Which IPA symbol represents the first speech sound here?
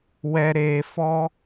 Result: w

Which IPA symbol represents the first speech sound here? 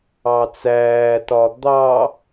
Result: ɑ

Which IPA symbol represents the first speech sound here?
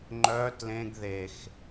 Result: ŋ͡ǃ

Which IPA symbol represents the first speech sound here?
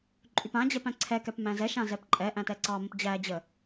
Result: ǃʼ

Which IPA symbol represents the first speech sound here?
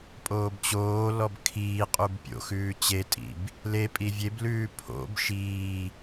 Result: pʼ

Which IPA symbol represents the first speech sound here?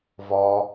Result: v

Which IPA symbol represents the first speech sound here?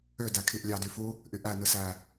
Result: ø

